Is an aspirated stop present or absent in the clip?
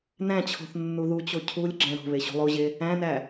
present